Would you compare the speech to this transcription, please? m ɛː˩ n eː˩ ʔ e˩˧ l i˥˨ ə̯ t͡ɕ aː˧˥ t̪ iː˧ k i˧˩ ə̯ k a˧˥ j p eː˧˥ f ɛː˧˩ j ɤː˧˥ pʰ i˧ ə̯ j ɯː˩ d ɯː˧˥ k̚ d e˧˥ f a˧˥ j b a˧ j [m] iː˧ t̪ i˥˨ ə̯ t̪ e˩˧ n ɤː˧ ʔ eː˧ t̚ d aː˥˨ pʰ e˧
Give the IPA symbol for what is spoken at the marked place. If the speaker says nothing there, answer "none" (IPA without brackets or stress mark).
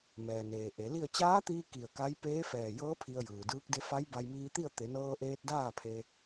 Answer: m